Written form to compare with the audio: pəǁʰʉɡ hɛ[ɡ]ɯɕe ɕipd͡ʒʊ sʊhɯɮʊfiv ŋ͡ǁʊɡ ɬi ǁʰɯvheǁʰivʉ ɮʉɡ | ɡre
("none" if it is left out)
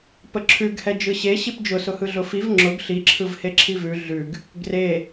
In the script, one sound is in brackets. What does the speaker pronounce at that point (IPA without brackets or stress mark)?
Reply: d͡ʒ